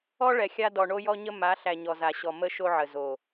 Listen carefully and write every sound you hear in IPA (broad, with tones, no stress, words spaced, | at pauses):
ɔ˦ ɭɛ˨xʲa˦ dɔ˨ɳo˦jɔ˦ɲə˦ ma˨˦ɬæ˨ ɲɔ˨za˨ɕɔ˨ mə˦ʃo˦ʕə˨ zo˨